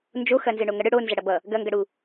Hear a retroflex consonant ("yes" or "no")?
yes